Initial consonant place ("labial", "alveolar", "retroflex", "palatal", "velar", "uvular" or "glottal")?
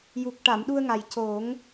palatal